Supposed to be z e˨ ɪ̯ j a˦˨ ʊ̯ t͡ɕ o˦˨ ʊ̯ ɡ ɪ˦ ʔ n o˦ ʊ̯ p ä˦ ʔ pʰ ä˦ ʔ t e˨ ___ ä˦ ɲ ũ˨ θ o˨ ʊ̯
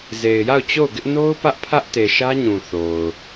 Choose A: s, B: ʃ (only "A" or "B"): B